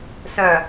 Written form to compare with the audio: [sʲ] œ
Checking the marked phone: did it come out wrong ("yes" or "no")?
yes